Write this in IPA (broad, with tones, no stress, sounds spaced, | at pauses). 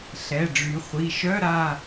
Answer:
ɬ ɛ˩˧˩ ɖ͡ʐ y˩˧ χʷ i˩˧˩ ʃ œ˧˥˧ ɾ a˦˨